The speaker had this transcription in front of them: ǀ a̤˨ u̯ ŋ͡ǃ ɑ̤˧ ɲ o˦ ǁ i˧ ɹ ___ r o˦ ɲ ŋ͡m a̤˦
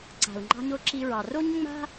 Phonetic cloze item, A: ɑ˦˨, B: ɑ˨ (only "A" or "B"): B